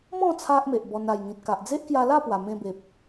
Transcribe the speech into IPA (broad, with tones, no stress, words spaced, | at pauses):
mɔ̃˥˧ t͡sʰa˦ʔme˨ʔbɔ˧n a˨˩jŋĩ˨t̚ka˨ʔ d͡ze˦ʔkja˧la˥˧pwa˨˩ mẽ˧be˨p̚